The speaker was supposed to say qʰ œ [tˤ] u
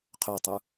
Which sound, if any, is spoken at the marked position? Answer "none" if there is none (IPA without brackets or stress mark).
tˤ